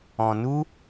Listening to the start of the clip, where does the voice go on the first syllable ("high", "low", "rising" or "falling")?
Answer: low